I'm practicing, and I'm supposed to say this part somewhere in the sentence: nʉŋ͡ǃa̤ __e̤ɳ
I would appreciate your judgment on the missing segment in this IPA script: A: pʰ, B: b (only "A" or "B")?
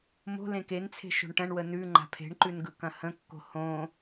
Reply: A